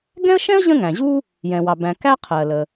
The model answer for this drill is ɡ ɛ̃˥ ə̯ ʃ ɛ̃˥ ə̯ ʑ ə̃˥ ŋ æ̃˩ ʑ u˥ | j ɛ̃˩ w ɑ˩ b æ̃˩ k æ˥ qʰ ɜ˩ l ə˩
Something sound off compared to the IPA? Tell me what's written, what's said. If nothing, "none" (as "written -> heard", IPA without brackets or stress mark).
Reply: none